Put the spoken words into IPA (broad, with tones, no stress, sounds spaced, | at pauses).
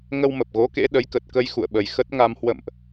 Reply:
ŋ ə˧ w m ə˨˩ p̚ ɣ o˨˦ k ḛ˧˥ ɗ ə˨˦ j k ə˨˩ t̚ k ə˧ j x ṵ˧˨ ə̯ ɓ ə˨˩ j x ə˦˥ t̚ ŋ a˧ m h w ə̰˧˨ m ʔ